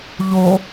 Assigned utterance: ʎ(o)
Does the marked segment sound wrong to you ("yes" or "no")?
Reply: no